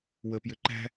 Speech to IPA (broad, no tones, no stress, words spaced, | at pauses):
wəpjʏ ǃæ̤